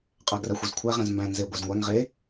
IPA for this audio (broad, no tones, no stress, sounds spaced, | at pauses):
qʼ æ ɡ r æ xʷ e z kʷʰ æ ʁ ɛ̃ z m b æ̃ n z e ɡʷ æ z ŋʷ æ ŋ ʁ e